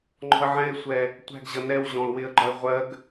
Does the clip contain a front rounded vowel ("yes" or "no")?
no